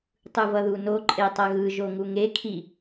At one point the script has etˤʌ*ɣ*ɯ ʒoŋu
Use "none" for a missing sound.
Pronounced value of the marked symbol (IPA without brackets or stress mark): ɣ